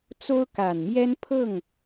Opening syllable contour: high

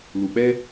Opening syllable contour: low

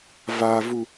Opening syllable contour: low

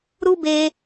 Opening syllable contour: high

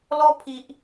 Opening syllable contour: high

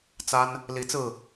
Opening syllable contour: high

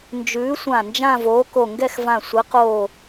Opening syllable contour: rising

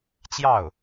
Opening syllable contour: falling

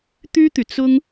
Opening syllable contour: high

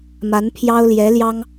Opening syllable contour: rising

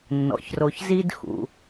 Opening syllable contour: low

